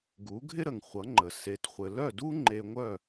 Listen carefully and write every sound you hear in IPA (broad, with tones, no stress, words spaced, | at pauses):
ɡu˩˥ɡʱɪ˥ɾə˩ŋ χʷʌ˩˥ŋ͡ǃə˩ se˩tχʷɘ˩ lœ˥˩du˥ ŋ͡ǃe˧ŋʷœ˥˩